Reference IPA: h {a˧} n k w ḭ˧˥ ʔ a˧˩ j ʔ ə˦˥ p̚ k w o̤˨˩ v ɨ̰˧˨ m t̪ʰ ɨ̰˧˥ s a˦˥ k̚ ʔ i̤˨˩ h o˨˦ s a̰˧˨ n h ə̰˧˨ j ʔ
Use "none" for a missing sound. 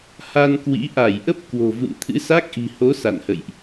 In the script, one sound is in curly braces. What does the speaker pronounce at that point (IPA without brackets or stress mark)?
a˧